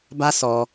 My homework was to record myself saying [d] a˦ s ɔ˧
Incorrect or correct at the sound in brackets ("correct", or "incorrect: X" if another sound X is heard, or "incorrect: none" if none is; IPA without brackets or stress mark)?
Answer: incorrect: b